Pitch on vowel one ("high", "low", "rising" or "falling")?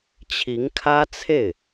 rising